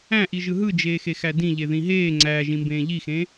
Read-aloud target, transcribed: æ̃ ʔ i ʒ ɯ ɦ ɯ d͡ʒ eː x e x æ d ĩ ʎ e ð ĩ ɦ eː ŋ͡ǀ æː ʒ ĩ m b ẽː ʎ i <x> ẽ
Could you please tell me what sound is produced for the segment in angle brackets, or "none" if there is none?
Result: x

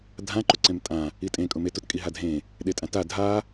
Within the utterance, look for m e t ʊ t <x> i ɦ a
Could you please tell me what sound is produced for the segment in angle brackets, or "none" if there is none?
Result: kʼ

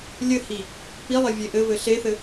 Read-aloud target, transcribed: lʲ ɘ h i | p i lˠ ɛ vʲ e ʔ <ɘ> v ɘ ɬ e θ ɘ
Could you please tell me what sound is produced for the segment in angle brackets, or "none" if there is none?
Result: ɘ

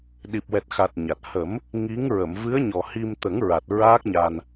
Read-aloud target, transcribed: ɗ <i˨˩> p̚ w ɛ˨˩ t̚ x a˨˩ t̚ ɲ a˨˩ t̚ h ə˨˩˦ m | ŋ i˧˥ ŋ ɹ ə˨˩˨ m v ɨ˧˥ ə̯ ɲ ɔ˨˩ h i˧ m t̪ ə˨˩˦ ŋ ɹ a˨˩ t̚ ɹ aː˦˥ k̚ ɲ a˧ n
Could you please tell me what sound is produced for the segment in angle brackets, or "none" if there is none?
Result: i˨˩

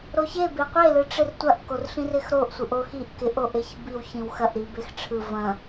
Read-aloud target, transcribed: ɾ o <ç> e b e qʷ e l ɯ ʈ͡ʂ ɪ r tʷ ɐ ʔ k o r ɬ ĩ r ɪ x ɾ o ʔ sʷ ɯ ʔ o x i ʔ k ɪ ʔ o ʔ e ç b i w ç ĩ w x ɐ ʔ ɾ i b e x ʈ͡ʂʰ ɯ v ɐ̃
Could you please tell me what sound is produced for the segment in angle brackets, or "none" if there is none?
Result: ç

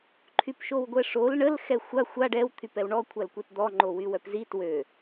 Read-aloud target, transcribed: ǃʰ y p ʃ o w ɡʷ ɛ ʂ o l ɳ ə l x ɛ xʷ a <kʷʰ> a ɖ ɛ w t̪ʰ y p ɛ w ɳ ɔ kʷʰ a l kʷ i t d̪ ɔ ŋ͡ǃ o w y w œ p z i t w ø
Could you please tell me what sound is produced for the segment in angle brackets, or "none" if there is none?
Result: xʷ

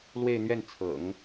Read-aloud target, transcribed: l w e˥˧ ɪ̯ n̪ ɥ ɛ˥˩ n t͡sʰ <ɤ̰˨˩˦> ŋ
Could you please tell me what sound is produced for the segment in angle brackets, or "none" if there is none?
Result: ɤ̰˨˩˦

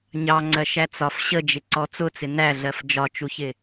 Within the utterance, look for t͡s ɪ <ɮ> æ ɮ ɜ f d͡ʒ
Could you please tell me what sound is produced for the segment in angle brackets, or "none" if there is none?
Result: n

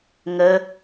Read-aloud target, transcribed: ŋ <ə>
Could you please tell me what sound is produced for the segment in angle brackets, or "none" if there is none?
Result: ə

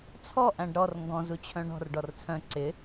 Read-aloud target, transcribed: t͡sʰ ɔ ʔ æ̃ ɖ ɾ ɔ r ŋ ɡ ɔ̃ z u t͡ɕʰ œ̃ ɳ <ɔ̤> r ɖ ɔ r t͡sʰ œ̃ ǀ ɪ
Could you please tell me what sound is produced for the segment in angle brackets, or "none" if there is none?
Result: ɔ̤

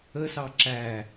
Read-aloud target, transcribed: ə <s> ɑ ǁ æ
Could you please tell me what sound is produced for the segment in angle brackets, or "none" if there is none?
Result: s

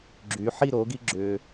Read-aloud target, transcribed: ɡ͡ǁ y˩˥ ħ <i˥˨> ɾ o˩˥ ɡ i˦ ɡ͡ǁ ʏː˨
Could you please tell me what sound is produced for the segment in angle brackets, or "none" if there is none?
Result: i˥˨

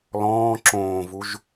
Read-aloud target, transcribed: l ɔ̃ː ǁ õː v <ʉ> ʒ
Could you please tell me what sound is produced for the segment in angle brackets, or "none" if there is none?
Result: u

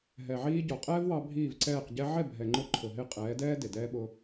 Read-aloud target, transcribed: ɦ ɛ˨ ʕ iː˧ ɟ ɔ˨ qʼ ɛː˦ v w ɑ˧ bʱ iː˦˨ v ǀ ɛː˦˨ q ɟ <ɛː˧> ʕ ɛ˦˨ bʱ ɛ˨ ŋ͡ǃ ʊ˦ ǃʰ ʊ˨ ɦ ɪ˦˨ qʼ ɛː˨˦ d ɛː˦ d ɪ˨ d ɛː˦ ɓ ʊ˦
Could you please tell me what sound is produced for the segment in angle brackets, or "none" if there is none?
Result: ɛ˧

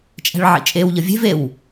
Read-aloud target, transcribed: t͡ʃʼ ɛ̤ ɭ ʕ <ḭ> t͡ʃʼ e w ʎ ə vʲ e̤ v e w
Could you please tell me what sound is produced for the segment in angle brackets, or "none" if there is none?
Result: ḭ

